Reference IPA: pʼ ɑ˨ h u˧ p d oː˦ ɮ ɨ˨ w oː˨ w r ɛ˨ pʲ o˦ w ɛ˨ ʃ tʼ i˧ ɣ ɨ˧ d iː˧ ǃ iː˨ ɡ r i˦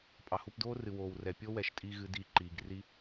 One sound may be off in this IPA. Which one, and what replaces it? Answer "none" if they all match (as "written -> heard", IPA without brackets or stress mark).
ɮ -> r